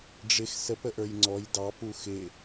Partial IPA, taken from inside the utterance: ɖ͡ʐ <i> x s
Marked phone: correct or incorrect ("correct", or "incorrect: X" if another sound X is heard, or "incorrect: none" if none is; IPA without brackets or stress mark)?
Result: incorrect: ɪ